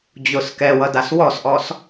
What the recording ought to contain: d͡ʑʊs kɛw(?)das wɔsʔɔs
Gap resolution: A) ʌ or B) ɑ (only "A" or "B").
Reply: A